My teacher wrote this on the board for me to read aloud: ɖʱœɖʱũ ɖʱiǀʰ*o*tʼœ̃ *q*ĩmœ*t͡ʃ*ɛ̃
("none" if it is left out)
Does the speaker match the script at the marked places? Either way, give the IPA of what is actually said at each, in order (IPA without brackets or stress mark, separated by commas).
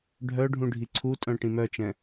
u, ʈ, t͡ʃ